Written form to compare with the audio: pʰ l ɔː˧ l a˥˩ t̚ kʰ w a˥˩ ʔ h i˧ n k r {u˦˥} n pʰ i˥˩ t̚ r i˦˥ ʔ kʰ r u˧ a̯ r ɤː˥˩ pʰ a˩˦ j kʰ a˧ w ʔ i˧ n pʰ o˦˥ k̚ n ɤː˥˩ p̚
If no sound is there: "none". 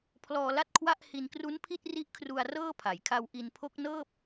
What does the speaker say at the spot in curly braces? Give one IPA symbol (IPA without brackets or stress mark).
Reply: u˦˥